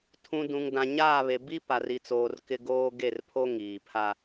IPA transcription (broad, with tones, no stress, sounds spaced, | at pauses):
tʰ ũ˨ d ũ˨ ŋ d ã˨ ɲ aː˦˨ β e˨ b i˦ p a˨ r i˨ t͡s oː˨ r k ɪ˦ ɡ oː˦ ɡ e˦˨ r pʰ o˦ ŋ iː˨ pʰ a˦